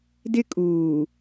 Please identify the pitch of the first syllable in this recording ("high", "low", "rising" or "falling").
high